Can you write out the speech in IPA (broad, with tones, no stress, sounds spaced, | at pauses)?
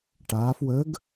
ʈ aː˩˧ f w ə˨˥ ɡ